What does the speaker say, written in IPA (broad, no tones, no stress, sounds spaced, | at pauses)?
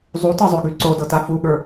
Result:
zˤ u t ɤ zˤ ø ɡ y ǀ o d ɤ t a f u ɠ ə˞